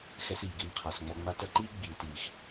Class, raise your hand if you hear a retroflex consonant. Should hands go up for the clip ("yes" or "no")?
no